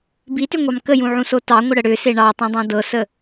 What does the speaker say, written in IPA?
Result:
b i t ʏ ŋʷ ɑ m k ə j ũ ʕ ũ s o t ɑ ŋʷ ə ɽ ə ɽ ʏ s e ɳ ɑ tˤ ũ dˤ ɑ̃ d ɤ s ə

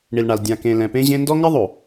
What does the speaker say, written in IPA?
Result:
ɳ i˨ l ɳ a˨ l dʲ ã˨ k ẽ˨ l ɛ̃˨ p ẽ˦ ʑ ẽ˦ n d ɔ˦ ŋ ɪ˦ ðˤ o˨

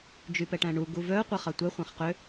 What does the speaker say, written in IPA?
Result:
d͡ʒ y p ɛ ʈ æ̃ ɳ u ɡ u v œ qʷ ɛ χ ɑ tʷ ɛ χʷ æ̃ χ q ø

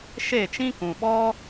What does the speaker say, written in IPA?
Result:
ʃ e˦˨ t͡ʃ ĩ˦ k ũ˨ ɓ ɔ˦

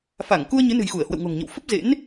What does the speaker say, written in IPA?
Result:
f a˧˩ ŋ k u˧ ə̯ ɲ ɨ˨˦ n ɨ̤˨˩ j x u˧˩ ə̯ h w ə̰˧˨ w ŋ o̤˨˩ ŋ ɲ ə̰˧˨ w f ə˦˥ p̚ z ḛ˧˥ n

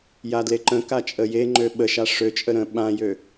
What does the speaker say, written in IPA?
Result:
j a d l e ǃ ə̃ k a t͡ʃʼ ə j e ŋ͡ǃ ø ɓ ə ʃ a ʂ ø t͡ʃʼ ə ɾ ə̃ ɓ ã j ø

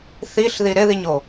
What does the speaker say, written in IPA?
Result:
θ i ɬ ð i ɾ ɪ ð i ɲ o

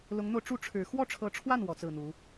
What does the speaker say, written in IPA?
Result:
l ʊ˧˥ ŋ n̪ o˧ ʊ̯ ʈ͡ʂ u˥˩ ʈ͡ʂʰ ɻ̩˨˩ x w ɔ˥˩ ʈ͡ʂʰ ɤ˧˥ ʈ͡ʂʰ w a˥˩ n w ɔ˧˥ t͡s ɹ̩˥˩ n̪ u˧˥

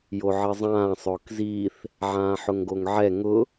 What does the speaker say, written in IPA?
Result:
j o ʕ ɪ zˤ ãː sˤ ʊː k z iː θ | ʕ ãː ħ ʊ ŋ ɡ o ŋ ʕ ɛ ŋ ʊ

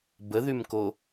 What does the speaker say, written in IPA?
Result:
b ə ð y m k o

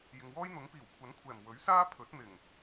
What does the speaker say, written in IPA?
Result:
j ɪ˨ ŋ w ɔː˥ j n̪ ʊ˨˥ ŋ p iː˨˩ w kʷʰ ɐ˨˥ n kʷʰ ɛː˨˩ m w ɵ˨˥ ɥ s aː˥ pʰ ɵ˨˥ t̚ n̪ ɪ˨˩ ŋ

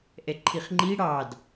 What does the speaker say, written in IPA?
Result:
ʔ ɛ ǃʰ i χ ŋ͡ǃ i ɽ ɑ d

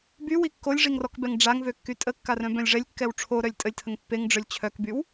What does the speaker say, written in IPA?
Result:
b y w i kː o lʲ ʐ i ŋ r ɔ k b ɛ ŋ ɖ͡ʐ a ŋ v ø kː y tʼ ə kː a r œ̃ b œ̃ lʲ ʐ ɛ lʲ kː ɛ w ʈ͡ʂʰ o ɾ œ lʲ tʼ ə lʲ tʰ ə ŋ pː e ŋ ɖ͡ʐ œ lʲ t͡ɕʰ œ k b y w

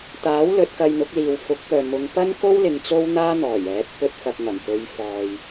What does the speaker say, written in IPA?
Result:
t̪ aː˨˥ w l ɵ˨˥ t̚ k ɐ˧ j n̪ ʊ˨˥ k̚ l iː˨ w f ʊ˨˥ k̚ p œː˨ m ʊ˨˧ ŋ p ɐ˥ n k o˥ w l ɪ˨ ŋ t͡s o˥ w n̪ aː˥ n̪ ɔː˨˩ j ɛː˨˥ t̚ p ɵ˧ t̚ f ɐ˨ k̚ ŋ ɐ˨˩ m p ɵ˨˧ ɥ f ɔː˨ j

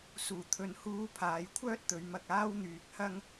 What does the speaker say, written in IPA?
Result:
s uː˨˩ t̪ʰ ɵ˨ n h uː˧ pʰ aː˨˧ j kʷʰ œː˥ t̚ t̪ ɵ˨˧ ɥ m ɐ˧ k̚ aː˥ w n̪ yː˨ k̚ h ɐ˥ ŋ

